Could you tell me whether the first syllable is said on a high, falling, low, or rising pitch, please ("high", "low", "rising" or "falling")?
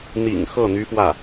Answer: low